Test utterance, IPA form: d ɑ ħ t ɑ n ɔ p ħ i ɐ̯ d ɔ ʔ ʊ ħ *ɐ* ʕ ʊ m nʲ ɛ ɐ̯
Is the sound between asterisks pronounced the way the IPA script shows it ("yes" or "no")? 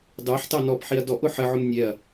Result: no